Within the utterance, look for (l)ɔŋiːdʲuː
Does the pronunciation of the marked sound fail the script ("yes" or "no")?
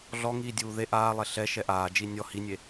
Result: yes